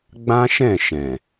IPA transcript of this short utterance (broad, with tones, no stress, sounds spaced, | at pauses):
ɡ͡b ã˦ ʃ ɛ̃˦˨ ʃ ɛ̃˨